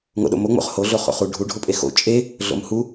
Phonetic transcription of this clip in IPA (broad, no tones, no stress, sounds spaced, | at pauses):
ŋ o̰ ɗ o̰ m o ŋ͡m o̰ χ h o ɮ o χ o̰ χ u ɖʱ u ɖʱ o pʼ e x o̰ t͡ʃʼ e | ɮ o̰ m h u